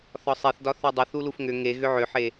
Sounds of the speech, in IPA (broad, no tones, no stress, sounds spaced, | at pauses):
θ ɒ sˤ e θ d ɒ θ o dˤ ʏ θ u l u f ŋ ʏ ŋ e ɣ ʏ ʕ ʏ ħ e